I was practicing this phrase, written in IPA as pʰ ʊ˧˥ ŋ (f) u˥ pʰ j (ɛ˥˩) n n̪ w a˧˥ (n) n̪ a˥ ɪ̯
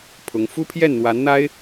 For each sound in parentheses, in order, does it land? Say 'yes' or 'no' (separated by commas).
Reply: yes, yes, yes